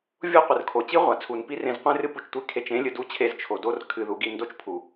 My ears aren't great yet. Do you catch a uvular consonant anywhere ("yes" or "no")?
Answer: yes